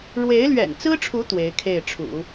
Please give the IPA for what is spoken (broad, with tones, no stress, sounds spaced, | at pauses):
ɻ w e˧˥ ɪ̯ l ɥ ɛ̰˨˩ n t͡s ɹ̩˥ ʈ͡ʂʰ u˧˥ t̪ w e˧˥ ɪ̯ kʰ e˥˩ ɪ̯ ʈ͡ʂʰ ṵ˨˩˦